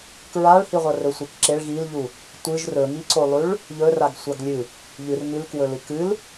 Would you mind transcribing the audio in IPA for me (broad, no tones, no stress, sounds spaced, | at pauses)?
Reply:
k ɹ a ɭ h i ʁʷ ɐ r ɵ sʷ e k ǁ e ɭ ɣ i l ʎ u | tʷ ɨ ʒ r ɵ ŋ i ǀ o lˠ ʉ ɭ | ʎ ɵ r a ɡ sʷ a ɡ lʲ ɨ | ʎ ɨ r ŋ ʉ l k w ɵ l ɨ k ɨ l